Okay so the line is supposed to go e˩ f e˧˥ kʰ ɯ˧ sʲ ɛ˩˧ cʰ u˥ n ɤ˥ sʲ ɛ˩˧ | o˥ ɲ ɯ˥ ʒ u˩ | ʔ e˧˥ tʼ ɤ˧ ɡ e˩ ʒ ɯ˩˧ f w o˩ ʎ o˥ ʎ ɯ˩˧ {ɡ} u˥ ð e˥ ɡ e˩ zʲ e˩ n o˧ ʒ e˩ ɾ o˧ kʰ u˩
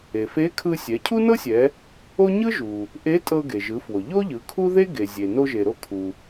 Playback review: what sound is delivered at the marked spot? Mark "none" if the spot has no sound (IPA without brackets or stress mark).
kʰ